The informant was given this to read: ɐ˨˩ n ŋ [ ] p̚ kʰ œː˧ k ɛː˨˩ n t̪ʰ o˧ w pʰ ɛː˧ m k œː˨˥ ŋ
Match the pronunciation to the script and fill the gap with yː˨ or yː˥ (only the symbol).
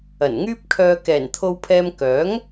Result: yː˥